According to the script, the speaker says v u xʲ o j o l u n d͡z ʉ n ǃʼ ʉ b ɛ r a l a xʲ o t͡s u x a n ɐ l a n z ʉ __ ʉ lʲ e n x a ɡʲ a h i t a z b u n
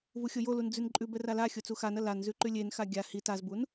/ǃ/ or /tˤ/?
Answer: ǃ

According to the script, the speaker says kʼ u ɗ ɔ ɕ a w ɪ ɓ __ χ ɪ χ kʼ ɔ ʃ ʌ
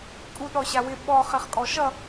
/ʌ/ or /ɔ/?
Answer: ɔ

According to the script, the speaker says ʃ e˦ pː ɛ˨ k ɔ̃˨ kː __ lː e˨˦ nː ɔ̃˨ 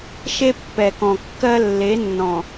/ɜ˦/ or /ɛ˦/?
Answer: ɜ˦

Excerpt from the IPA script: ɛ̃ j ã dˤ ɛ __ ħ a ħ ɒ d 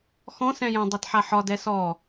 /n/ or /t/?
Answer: t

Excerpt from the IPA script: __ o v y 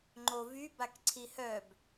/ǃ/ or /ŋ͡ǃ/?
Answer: ŋ͡ǃ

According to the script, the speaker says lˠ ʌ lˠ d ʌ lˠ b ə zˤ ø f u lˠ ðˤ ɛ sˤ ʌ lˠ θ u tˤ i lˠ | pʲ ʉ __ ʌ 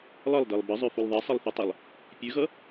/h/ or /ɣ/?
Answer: ɣ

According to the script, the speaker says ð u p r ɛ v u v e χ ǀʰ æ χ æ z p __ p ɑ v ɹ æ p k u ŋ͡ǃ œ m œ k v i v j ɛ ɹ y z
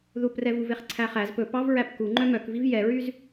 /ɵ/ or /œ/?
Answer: ɵ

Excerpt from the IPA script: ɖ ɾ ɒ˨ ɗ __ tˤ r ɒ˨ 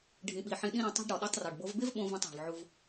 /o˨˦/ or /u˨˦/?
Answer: u˨˦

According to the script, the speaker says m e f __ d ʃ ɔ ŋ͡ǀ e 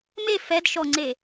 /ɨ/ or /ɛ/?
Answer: ɛ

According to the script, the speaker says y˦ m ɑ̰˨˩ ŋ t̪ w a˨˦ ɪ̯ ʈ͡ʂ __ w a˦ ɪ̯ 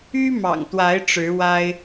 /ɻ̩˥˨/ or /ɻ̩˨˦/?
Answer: ɻ̩˨˦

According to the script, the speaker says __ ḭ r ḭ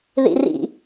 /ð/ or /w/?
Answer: ð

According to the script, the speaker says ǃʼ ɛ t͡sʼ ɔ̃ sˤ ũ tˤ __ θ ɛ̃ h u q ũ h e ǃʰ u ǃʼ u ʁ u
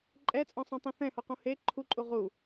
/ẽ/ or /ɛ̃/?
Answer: ẽ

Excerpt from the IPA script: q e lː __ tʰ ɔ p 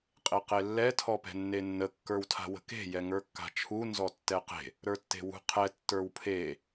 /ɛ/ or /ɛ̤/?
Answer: ɛ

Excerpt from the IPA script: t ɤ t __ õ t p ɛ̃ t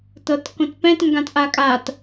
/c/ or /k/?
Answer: k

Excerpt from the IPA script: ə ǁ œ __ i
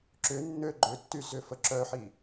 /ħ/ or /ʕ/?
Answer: ħ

